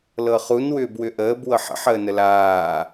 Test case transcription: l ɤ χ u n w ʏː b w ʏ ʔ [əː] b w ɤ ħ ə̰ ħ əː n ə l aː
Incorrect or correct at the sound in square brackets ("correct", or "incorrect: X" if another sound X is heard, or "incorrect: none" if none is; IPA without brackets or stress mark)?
correct